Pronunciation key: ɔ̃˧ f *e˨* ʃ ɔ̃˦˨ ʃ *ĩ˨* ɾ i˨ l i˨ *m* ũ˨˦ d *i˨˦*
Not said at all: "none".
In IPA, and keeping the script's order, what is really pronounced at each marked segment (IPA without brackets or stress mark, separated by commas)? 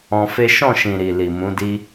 e˦, ĩ˨, m, i˦